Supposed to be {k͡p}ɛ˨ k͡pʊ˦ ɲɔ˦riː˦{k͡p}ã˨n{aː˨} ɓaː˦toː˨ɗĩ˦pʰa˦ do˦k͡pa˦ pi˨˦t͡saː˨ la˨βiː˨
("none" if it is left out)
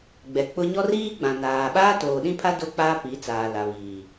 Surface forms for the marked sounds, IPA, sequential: ɡ͡b, ɡ͡b, aː˨

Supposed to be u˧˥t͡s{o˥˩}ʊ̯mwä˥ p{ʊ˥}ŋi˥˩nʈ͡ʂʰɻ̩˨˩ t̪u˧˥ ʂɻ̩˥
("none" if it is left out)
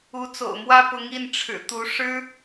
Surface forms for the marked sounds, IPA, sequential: o̰˨˩, ʊ˧˥

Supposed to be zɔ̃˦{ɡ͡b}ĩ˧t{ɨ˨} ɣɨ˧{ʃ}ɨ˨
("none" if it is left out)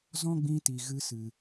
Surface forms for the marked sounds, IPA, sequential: ɡ͡b, i˨, s

